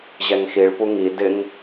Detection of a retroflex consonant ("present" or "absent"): present